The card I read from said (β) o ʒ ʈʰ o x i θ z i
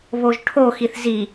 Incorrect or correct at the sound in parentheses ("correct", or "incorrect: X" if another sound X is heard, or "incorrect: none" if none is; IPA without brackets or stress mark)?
correct